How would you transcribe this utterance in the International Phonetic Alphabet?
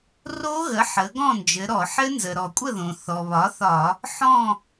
ro˦˥ɣə˩˥ħə˩˧ ɡɔ̃˥˨nd͡ʒɘ˩˧ ɾɔ˧˩˧ħɘ˦˥ nzə˩ɾɔ˧˩˧kʷʼə˥˨ðõ˩ θɔ˩βɒ˩˥θɒ˧˩˧ | ħɔ̃˥˨

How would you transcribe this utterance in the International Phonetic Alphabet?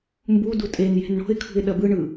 mbudu tʼenje̤n ɳo̤ɪ̯ kʰṳɪ̯ɗɐbɯɳɯ

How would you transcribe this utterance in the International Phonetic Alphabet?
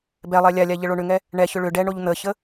bɛlˠɛ lʲalʲa ʎəɭoɳʏŋɛ | ɳɛçʏ ɭʏ ɖɛɳoʎ n̪əçə

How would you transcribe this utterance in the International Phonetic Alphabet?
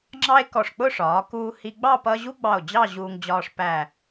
ŋ͡ǁɑ˥e̯ kɔ˧˩ʂk͡pʊ˥˧ʂɒː˩˧ kuː˧hi˧ɡ͡bɑ˥˧ pʌ˥ ʑu˥ɡ͡bɑ˧˩o̯ d͡ʑɑ˥˧ʑuː˧ŋ d͡ʑɒː˧ʂ pæ˧˩

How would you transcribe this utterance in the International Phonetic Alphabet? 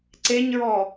ǀeɲɹɔ

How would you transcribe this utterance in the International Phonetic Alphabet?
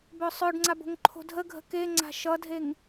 bœsˤœɖŋ͡ǀab o̤ŋǃʰo̤dʱəɡʱə̤ keŋ͡ǀa̤ ʃʌdʱeŋ

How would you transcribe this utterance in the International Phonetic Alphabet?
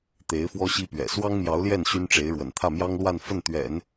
t̪e˧˥ɪ̯ fwɔ˥ɕi˥pɥɛ̰˨˩ swɑ˥ŋmjɑ˧˥ʊ̯ljɛ˥˩n ɕy˥nʈ͡ʂe˧˥ɪ̯ɻwə̰˨˩n t̪ʰä˥˩mjɑ˥ŋlwa˥˧nfə˥˩n t̪ɥɛ̰˨˩˦n

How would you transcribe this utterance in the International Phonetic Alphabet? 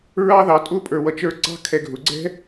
ɹɑ˥ðɑ˨tʼʊ˥ pʼə˞˨wʌ˨t͡ʃə˞˦ǀɑ̤˥ kʰɛ˨ɡʱʊ˩ɡ͡ǀɛ̤˥

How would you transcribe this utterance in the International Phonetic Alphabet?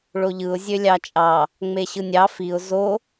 ɭoʎɯʊ̯ zʲølʲɑt͡ʃʼɑ | ŋ͡meɕɯnʲɑ fiʊ̯ zo

